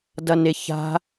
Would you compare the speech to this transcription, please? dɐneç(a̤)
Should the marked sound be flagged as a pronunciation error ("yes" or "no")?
no